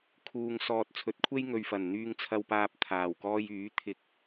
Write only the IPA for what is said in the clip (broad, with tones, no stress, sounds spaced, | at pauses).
kʰ uː˨ ŋ s ɔː˨ t̚ t͡sʰ ɵ˨˥ t̚ kʷʰ e˥ j ŋ ɵ˨ ɥ f ɐ˨˩ n n̪ yː˧ ŋ t͡sʰ ɐ˧ w p aː˧ p̚ t̪ʰ aː˨˩ w k ɔː˧ j yː˨˥ t̪ʰ ɪ˧ k̚